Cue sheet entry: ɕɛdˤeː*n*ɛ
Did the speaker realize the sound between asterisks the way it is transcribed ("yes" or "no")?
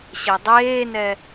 yes